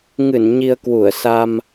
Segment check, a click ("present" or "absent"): absent